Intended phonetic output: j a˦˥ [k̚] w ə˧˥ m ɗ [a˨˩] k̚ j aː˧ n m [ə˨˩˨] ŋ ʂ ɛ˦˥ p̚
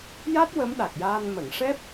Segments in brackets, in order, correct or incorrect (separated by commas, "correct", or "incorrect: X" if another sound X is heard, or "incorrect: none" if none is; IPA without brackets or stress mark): incorrect: t̚, correct, correct